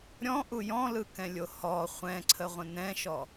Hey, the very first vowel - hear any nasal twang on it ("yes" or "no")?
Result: yes